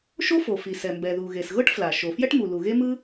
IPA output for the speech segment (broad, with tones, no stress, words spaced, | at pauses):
ʃo˥fo˩fi˩ sɛ˩mbɛ˩ ðu˩ɣe˩sɣɤ˥ʈ fla˩ʃo˩ fjɛ˥ʈmu˩lu˩ ɣe˥mɯ˥